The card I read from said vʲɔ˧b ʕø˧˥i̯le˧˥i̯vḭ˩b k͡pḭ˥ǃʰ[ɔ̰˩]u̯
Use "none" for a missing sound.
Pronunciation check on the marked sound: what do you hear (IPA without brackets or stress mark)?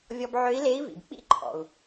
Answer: ɔ̰˩